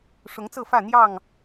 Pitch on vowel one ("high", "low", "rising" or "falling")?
rising